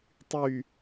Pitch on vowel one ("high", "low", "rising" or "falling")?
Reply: falling